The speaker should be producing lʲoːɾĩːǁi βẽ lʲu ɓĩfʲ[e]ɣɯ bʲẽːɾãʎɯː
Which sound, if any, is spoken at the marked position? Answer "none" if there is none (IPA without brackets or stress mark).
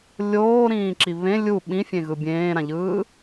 ẽ